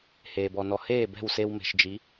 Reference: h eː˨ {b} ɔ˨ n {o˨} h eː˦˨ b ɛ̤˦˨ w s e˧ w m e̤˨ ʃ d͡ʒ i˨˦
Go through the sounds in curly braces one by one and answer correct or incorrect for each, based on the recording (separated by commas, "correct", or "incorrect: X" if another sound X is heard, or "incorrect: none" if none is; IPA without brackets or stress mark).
correct, incorrect: ɔ˨